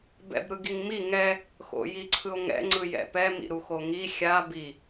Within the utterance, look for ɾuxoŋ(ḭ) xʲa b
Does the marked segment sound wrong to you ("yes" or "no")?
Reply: yes